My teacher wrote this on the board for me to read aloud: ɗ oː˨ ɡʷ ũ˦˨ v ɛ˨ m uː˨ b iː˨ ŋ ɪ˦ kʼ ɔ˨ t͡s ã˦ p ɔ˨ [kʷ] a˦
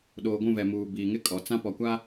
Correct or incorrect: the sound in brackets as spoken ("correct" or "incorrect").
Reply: correct